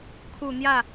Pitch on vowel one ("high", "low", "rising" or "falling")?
low